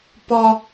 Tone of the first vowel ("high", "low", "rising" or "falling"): high